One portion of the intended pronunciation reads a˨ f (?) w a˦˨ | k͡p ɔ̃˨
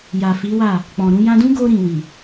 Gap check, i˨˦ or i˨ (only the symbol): i˨˦